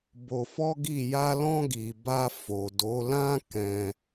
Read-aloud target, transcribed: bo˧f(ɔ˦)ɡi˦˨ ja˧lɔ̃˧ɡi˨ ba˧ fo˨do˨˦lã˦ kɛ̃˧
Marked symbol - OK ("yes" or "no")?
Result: yes